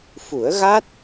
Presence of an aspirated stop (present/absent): absent